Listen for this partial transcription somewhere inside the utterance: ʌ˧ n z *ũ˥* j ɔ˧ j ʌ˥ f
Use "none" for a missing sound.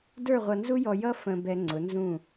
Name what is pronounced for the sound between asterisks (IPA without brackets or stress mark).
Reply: u˥